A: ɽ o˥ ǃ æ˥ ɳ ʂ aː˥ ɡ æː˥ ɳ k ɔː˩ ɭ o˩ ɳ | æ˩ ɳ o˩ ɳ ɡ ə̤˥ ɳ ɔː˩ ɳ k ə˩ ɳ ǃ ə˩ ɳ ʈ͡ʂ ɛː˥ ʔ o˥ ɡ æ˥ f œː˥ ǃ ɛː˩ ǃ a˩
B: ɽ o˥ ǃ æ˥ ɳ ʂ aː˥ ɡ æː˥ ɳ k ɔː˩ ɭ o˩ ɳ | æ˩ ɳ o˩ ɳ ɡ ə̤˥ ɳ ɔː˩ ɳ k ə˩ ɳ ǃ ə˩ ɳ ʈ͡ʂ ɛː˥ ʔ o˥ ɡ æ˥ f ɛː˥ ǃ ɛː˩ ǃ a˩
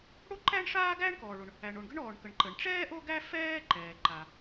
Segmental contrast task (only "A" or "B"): B